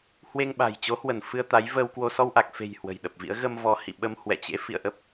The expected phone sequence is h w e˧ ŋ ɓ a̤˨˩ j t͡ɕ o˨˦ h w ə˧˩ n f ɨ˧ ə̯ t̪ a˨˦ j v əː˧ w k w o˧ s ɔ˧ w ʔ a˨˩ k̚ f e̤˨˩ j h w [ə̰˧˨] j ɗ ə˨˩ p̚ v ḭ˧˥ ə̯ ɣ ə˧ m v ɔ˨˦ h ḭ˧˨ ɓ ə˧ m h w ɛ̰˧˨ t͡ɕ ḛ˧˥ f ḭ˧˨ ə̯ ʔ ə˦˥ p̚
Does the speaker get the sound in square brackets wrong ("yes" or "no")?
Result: yes